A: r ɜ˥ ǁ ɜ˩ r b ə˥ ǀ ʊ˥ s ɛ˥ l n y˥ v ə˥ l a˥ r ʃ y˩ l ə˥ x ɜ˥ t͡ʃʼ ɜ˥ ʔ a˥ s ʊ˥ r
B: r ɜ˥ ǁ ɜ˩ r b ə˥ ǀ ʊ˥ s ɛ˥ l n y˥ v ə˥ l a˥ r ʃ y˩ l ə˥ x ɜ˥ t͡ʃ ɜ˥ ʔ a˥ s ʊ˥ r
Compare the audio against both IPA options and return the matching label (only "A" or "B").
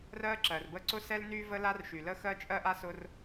A